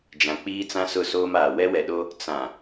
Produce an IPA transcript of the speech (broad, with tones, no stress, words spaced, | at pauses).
d͡ʒã˨k͡piː˦t͡sã˦ sʊ˦˨soː˦maː˨ wɛ˦wɛ˨ɗo˦ | t͡sã˨